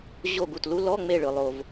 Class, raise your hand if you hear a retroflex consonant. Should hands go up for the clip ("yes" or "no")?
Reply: yes